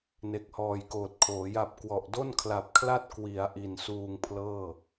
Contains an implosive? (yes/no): no